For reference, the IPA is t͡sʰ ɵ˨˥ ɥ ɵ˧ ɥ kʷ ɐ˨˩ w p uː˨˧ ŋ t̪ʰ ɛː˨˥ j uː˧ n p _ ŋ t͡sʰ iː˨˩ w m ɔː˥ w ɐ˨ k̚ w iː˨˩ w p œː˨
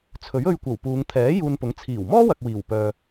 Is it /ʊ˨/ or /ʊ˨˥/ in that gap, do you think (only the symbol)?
ʊ˨˥